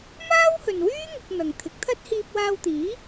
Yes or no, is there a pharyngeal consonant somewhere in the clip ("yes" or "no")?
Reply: no